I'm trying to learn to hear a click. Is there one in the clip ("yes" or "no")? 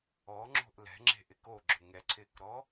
yes